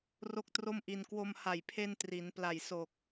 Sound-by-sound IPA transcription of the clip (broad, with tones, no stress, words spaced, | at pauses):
ro˥˩k̚tro˥˩mʔi˧n kwo˧mha˨˩jpʰe˧n tri˩˦n pla˨˩jso˨˩k̚